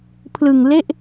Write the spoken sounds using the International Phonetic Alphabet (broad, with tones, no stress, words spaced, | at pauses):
pʰlɯ˨˩ŋle˥˩ʔ